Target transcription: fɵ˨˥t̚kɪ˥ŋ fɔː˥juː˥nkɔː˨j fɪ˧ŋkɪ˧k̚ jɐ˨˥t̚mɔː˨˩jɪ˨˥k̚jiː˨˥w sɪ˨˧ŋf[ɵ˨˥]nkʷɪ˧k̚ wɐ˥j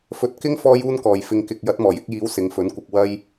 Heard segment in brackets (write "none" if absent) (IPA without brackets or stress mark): ɵ˨˥